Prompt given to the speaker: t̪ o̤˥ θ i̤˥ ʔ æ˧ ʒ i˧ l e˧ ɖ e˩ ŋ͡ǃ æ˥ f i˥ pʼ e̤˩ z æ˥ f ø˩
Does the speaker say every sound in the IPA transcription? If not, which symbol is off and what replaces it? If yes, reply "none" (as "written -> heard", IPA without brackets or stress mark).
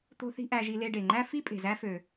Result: none